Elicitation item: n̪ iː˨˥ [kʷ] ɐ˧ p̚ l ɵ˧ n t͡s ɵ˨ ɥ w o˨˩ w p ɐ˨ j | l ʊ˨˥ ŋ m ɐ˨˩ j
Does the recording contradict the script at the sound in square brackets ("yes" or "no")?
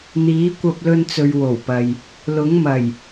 no